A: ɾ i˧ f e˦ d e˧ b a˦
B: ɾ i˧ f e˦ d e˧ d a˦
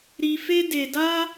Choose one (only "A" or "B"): B